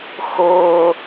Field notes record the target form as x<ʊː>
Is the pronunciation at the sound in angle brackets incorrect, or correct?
correct